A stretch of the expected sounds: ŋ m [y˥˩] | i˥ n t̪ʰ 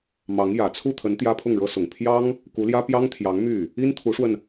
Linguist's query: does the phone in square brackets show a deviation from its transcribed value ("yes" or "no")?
no